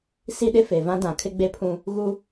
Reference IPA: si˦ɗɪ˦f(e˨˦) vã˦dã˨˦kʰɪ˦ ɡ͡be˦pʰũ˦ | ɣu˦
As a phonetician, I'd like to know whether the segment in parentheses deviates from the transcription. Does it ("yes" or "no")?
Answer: yes